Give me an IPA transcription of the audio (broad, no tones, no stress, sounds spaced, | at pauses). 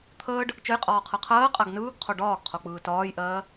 t̪ʰ əː ɖ | t͡ʃ ə j qʼ ɒː qʰ ɜ qʰ ɜː qʼ a ɡ n ɯː ɡ qʰ o ɖ ɒː ɡ qʰ o k͡p ɯː t ɒː j ʔ ɜː